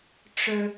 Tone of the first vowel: low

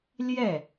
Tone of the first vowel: falling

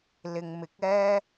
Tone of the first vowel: low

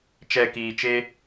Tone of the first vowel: low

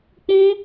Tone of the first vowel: high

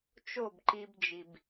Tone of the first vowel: falling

